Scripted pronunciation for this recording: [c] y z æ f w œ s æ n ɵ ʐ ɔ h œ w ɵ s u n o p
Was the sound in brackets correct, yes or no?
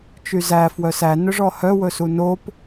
no